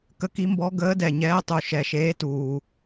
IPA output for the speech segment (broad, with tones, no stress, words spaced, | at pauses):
kə˧˥ki˧˥mbɔ˧˥ ɡəː˧˥dɛ˨˩ɲɛː˧˥tˤu˨˩ ʃɛ˨˩ʃeː˧˥tuː˨˩